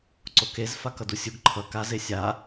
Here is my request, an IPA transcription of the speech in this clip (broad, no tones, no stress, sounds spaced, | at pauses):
ǀ o k e z f a k ʌ d u sʲ u ɡ ǃʰ ʌ k a z e sʲ a